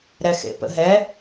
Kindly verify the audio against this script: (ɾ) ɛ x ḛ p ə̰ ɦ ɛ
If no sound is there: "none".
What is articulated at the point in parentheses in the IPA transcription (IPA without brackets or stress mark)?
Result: ɾ